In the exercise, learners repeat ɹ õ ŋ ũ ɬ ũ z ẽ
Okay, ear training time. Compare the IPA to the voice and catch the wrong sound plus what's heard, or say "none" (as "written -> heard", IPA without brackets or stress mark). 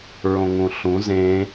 none